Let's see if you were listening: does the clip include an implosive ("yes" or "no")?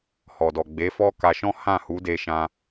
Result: no